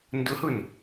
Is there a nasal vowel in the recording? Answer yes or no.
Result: no